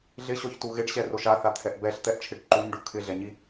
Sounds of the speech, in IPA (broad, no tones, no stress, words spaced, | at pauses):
ɮɪɕɔçtu ɣɪɖɕɛroʃ aθat̪ʰɛʔ bɛɬt̪ɛʔt͡ʃʰɪɖ ǃuɲɖu kʰɪɮɛɲi